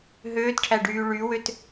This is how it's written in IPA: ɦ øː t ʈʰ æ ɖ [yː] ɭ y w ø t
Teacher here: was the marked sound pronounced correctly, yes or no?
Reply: yes